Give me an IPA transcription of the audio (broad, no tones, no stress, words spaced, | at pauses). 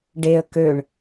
ɖeə̯ køɳ